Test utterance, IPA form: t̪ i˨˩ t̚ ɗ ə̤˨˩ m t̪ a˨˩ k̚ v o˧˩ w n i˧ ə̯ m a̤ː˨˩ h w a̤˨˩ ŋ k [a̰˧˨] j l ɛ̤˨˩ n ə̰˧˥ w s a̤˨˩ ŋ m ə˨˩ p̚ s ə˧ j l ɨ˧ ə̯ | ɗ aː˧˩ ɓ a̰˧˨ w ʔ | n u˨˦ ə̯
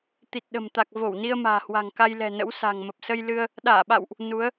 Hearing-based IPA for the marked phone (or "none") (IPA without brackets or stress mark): a˧